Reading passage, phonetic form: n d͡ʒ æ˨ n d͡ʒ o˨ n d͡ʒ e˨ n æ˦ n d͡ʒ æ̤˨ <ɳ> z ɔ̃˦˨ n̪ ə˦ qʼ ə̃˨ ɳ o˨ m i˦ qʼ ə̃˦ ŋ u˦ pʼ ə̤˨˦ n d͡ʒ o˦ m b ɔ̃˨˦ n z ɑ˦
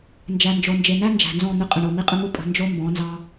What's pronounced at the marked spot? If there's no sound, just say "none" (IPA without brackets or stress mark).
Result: n